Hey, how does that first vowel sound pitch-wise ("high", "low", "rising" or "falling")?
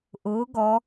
rising